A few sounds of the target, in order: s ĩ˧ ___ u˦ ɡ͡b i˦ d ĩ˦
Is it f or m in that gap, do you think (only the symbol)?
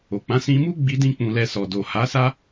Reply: m